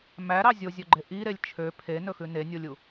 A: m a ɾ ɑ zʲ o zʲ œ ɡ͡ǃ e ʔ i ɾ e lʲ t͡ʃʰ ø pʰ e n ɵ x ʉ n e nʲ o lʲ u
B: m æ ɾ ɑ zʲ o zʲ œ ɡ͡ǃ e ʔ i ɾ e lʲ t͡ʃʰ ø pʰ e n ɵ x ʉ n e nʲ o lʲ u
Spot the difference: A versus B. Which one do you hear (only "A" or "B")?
B